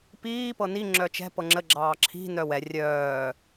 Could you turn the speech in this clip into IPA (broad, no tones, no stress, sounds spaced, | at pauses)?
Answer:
p iː p ɤ n i ŋ͡ǁ œ t͡ʃ ɛ̤ p ɤ ŋ͡ǁ ə ɡ͡ǁ ɑː ǁʰ i̤ n œ w ɛ rʲ œː